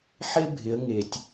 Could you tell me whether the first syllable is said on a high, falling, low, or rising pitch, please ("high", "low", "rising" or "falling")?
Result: high